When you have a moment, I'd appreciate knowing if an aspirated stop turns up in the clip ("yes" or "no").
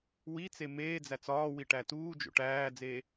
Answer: no